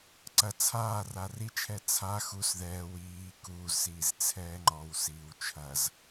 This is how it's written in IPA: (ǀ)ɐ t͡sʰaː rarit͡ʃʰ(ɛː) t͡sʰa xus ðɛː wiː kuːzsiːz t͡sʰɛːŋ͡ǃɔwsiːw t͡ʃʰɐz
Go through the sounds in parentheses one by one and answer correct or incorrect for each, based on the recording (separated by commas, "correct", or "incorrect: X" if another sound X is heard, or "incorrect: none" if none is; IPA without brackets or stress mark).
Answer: correct, incorrect: ɛ